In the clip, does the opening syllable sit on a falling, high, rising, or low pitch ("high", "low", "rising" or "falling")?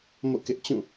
falling